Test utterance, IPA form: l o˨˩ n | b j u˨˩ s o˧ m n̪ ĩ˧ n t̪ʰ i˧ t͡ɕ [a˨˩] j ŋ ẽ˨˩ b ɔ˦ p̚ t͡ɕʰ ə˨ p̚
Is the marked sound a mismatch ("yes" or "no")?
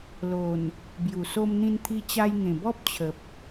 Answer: yes